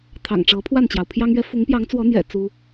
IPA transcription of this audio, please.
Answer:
t̪ʰ ɑ̰˨˩ ŋ ʈ͡ʂ ɤ˨˦ pʰ w a˥˨ n t͡ɕ j ɑ˩ ʊ̯ pʰ j ɑ˦ ŋ ɥ ɛ˦ f ʊ˨˦ ŋ p j ɑ˨˦ ŋ t͡s w ɔ˨˦ n̪ j ɛ̰˨˩ t͡s u˦

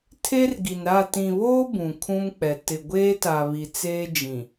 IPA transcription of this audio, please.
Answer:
tʰ e˦ r ɡ i˨ n ɾ a˦˨ t ĩ˨ β oː˦ b ũ˨ kʰ ũ˦ m k͡p ɛ˨ t ɪ˨ ɡʷ eː˦ t a˨ β i˨ t͡s eː˦ d͡ʒ ĩ˨

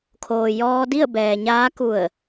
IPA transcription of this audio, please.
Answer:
kʰ oː˩ j ɔː˧ d i˥˨ ə̯ b ɛː˩ ɲ aː˧˥ k u˧˩ ə̯

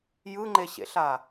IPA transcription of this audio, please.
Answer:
j ɯ ŋ͡ǃ e ɕ ḛ ɬ a

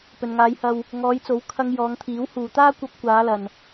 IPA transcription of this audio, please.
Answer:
p ɵ˨ n ŋ aː˨˧ j h ɐ˧ w | ŋ ɔː˨˧ j t͡s o˨˥ w kʰ ɐ˧ ŋ j ɔː˨˧ ŋ t̪ʰ iː˨˥ w h uː˨ t̪ aː˥ kʷ ɐ˧ p̚ kʷ aː˨˧ l ɐ˨ n

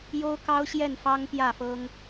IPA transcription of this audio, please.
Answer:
j o˦ ʊ̯ k ɑ˦ ʊ̯ ɕ j ɛ˥˨ n f ɑ˦ ŋ p j ä˥˨ f ɤ˦ ŋ

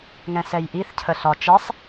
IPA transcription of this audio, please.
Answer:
ŋ ɛ̃ s ɛ j ʔ i θ cʰ ə ɬ ɒ t͡ʃ ɛ sˤ

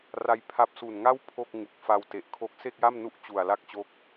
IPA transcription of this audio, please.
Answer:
r a˦˥ j pʰ a˦˥ p̚ s u˨˩ n ŋ a˥˩ w pʰ o˥˩ k̚ ŋ u˨˩ k̚ f a˧ w t e˨˩ ʔ kʰ o˦˥ k̚ s e˥˩ k̚ j a˥˩ m n u˦˥ ʔ t͡ɕ u˨˩ a̯ l a˥˩ k̚ t͡ɕ o˦˥ k̚

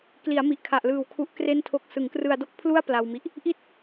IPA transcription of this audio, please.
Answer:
k l i˩˦ a̯ m i˨˩ ʔ kʰ a˨˩ ʔ l ɯː˨˩ w kʰ u˦˥ ʔ k r e˥˩ n tʰ o˦˥ k̚ s ɯ˩˦ ŋ k r ɯ˧ a̯ d o˥˩ k̚ pʰ l u˥˩ a̯ p l a˧ w m i˦˥ ʔ | ʔ i˥˩ t̚

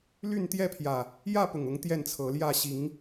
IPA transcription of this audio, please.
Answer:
l y˥˨ n t̪ j ɛ˥˨ pʰ j ä˨˩ | j ä˥˨ p ʊ˨˩ ŋ ʊ˨˦ ŋ t̪ j ɛ˥˨ n t͡sʰ ɤ˨˦ l j ä˥˨ ɕ i˨˦ ŋ

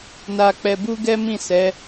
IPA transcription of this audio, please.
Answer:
n a˧ k͡p ɛ˧ b u˦ ɡ ɛ˦ m ĩ˦˨ s ɛ˨˦

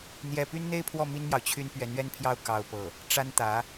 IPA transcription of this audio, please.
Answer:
n̪ j ɛ˥˩ p y˥ n n̪ e˥ ɪ̯ pʰ w ɔ˥˩ m i˥ n m j ɑ˨ ʊ̯ t͡ɕʰ y˥ n p ɥ ɛ˧˥ n ɥ ɛ˥ n pʰ j ɑ˥˧ ʊ̯ k ɑ˥˧ ʊ̯ p ɤ˥˩ | ʈ͡ʂ a˥ n t̪ ä˧˥

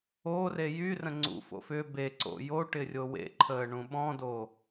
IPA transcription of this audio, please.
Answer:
o r e j y r ə̃ ŋ͡ǀ ṵ f o̰ f ʏ b e ǀ o̰ j o ʈ ɪ rʲ o w ḛ ǃʰ əː ɳ ũ ɓ ɔ̃ d o

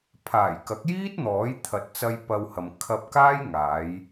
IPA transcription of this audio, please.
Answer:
pʰ aː˨˩ j k ɐ˨˥ k̚ j iː˥ t̚ n̪ ɔː˨˥ j t̪ʰ ɐ˨˥ t̚ t͡s ɐ˧ j p ɐ˧ w h ɐ˨ m kʰ ɐ˧ p̚ k aː˥ j ŋ aː˨˧ j

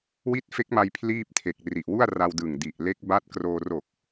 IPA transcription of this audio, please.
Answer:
w i˦˥ t̚ f e˦˥ k̚ m a˧ j pʰ l iː˥˩ p̚ tʰ e˨˩ k̚ r i˨˩ ʔ w u˥˩ a̯ r a˧ w d ɯ˨˩ ŋ d i˨˩ ʔ l e˦˥ k̚ b a˦˥ t̚ k r oː˧ r o˨˩ k̚

